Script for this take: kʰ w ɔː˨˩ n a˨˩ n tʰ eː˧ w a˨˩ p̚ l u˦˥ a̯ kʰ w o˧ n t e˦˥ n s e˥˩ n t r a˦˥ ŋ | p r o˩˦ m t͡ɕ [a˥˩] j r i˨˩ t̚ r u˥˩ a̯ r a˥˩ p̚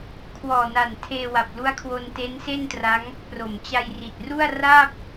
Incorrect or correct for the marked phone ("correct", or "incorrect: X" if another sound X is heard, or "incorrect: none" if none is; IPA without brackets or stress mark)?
incorrect: a˧